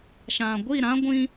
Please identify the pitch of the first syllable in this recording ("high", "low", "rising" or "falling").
low